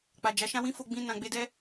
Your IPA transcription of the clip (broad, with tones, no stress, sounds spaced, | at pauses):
k͡p a˨ d͡ʒ a˨˦ ʃ ã˦ w ĩ˦ f o˧ ɡ͡b ĩ˧ n ã˨ ɡ͡b e˧ d ɛ˦